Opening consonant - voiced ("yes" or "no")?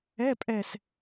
no